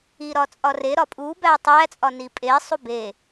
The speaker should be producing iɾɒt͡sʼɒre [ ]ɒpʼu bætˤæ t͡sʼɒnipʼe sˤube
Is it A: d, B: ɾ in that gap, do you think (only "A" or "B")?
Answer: B